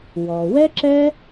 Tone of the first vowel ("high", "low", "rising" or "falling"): low